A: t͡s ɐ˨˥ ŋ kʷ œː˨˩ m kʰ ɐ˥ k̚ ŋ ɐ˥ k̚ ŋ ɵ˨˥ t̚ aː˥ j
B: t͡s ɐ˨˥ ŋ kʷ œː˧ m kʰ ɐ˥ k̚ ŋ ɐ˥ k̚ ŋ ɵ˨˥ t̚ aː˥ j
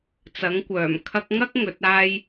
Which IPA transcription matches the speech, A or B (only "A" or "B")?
A